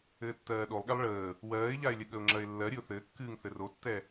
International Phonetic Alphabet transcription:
ɘː tː ɜː ɗ o lˠ ɠ ɛ lˠ ɭ əː | w ɜː ɪ̯ ʎ a ɪ̯ lʲ ɘ ɠ ə ʊ̯ ŋ͡ǁ ɜ ɪ̯ lː ɜ ɾʲ ɨ ʊ̯ θ ɘː kː ɨː ŋ θ ɘ r o tː ɛ

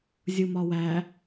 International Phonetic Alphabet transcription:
zʲ u m ɒ w æ

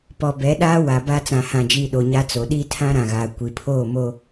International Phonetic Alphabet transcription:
p ɔ˨ b ɛ˨˦ ɗ aː˦ w a˨ b aː˦ t͡s ã˨ h ã˨ d͡ʒ iː˨ ɗ o˨ ɲ a˦ t͡s o˨ ɗ iː˦ tʰ ã˦ ɾ ã˨ ɣ aː˨ kʷ i˨ pʰ oː˦˨ m o˦

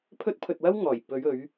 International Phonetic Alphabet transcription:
pʰ ɵ˥ t̚ pʰ ɵ˧ t̚ w ɐ˥ w ŋ ɔː˨˩ j p ɵ˨˧ ɥ ɵ˨˧ ɥ

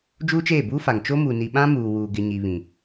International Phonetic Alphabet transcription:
d͡ʒ uː˦ t͡ʃ eː˦˨ b uː˦ f a˨ ŋ t͡ʃ o˦ m uː˨ n i˨ ɓ ã˦ m uː˨ w uː˨ ɡ ɪ˨ ɲ i˨ β ĩ˨

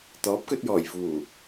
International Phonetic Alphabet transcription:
t̪ ɔː˨˥ p̚ k ɵ˧ t̚ j ɔː˨˩ j f uː˨˩

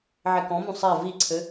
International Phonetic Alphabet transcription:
ʕ e k ɔ̃ m ũ sˤ ɛ v i ǀʰ ɘ

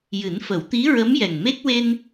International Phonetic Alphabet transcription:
j ɨ˨˩˦ n f ə˨˩˦ w t̪ i˧˥ ɹ ə˧˥ m j ɛ˨˩ ŋ m e˦˥ k̚ w e˧ n

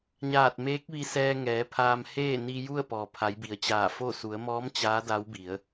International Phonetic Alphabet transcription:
ɲ aː˧˩ t̚ m eː˧˥ k̚ ʋ i˧ s ɛː˧ ŋ ɛː˩˧ pʰ aː˧ m h eː˥˨ n i˧ j u˥˨ ə̯ p ɔː˩ pʰ a˩˧ j b i˩ ə̯ t͡ɕ aː˧˩ f o˥˨ s u˩˧ ə̯ m ɔː˧˥ m t͡ɕ aː˧˥ d a˧˥ w b i˩˧ ə̯

